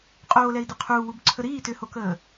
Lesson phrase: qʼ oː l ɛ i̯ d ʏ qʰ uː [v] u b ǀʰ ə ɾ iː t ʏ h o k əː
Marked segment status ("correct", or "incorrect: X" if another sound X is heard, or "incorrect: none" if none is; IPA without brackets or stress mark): incorrect: w